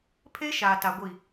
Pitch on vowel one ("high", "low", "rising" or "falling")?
high